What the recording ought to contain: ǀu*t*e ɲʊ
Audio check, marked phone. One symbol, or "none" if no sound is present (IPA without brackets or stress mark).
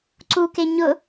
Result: k